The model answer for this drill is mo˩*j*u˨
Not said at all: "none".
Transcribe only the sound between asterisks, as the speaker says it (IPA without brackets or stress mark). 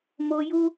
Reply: j